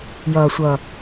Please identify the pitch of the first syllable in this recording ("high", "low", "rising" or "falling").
low